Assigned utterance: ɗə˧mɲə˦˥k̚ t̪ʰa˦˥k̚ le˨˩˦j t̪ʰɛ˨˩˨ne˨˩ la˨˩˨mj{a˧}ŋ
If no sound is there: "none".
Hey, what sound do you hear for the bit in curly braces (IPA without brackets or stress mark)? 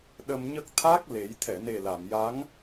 a˧˥